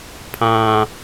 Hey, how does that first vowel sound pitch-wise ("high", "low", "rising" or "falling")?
low